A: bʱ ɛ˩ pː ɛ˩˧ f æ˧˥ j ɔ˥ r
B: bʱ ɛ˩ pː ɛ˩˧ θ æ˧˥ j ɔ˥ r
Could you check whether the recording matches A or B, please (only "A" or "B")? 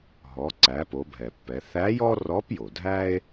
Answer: B